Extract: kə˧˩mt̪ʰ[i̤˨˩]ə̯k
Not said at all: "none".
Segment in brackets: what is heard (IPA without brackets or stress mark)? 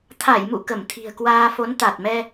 i̤˨˩